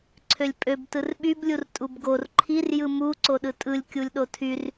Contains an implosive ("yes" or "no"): yes